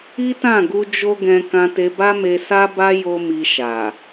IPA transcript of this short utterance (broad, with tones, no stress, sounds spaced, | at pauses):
i˦ t ã˦˨ ɡ u˧ d͡ʒ o˦ ɡ ɛ̃˧ k ã˧ t e˧ b a˦ m e˧ s a˦ b a˦ j o˦ m i˧ ʃ a˨